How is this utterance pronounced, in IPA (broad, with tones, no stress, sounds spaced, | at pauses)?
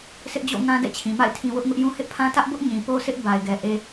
s ɪ˦ ʔ d͡ʑ o̰˦˨ ŋ ã˦ d ɛ̰˦˨ t͡ɕʰ ĩ˨ m a̰˦˨ ɪ̯ tʰ ĩ˨ w ʊ˦ ʔ ŋ ʊ˦ ʔ j ũ˦ h ɪ˦ ʔ pʰ ã˦ t ä˦ ʔ b ʊ˦ ʔ ɲ ĩ˨ p o˦ s ɪ˦ ʔ b a˦ ɪ̯ ɡ ɛ˦ ʔ e˦